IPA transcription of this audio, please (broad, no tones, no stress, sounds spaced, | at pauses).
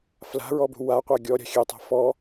f l a̤ ɹ ɔ b ṳ w a qʷ a ɡʲ ɔ ɾʲ a̤ xʲ e tˤ a̤ f ɔ